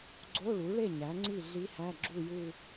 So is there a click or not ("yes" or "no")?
yes